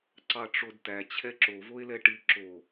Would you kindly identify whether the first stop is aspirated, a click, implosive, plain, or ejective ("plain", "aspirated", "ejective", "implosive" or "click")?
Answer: click